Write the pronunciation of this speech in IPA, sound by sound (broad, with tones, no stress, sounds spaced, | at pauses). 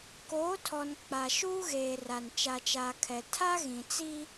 k oː˨˦ tʰ ɔ˨ n k͡p a˨ ʃ uː˦ ɣ eː˨ r a˨ n t͡ʃ a˨ t͡ʃ aː˨ kʰ ɛ˨ tʰ a˦ ɣ ĩ˨ t͡s i˦